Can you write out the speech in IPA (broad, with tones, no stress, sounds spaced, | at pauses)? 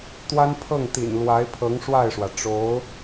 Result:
t̪ w a˥ n pʰ ɤ˥˩ ŋ t̪ ḭ˨˩ n l w a˧˥ ɪ̯ pʰ ɤ˧˥ ŋ ʂ w a˥˩ ɪ̯ ʂ w ä˩ ʈ͡ʂ o˧˥ ʊ̯